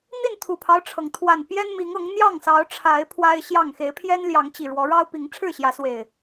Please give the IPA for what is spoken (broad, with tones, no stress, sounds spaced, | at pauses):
n̪ i˥˨ n t̪ʰ u˨˩ pʰ ɑ˦ ʊ̯ ʈ͡ʂʰ ɤ˩ ŋ t̪ʰ w a˨˩ n p j ɛ˦ n m i˨˦ ŋ ɤ˨˦ ŋ n̪ j ɑ˥˨ ŋ s ɑ˨˦ ʊ̯ ʈ͡ʂʰ a˨˦ ɪ̯ pʰ w a˦ ɪ̯ ɕ j ɑ˥˨ ŋ x e˨˦ ɪ̯ pʰ j ɛ˦ n l j ɑ˨˦ ŋ t͡ɕ i˨˩ ɻ w ɔ˨˦ ɻ ɑ˦ ʊ̯ p i˨˦ ŋ ʈ͡ʂʰ ɻ̩˥˨ ɕ j ä˨˦ s w e˨˩ ɪ̯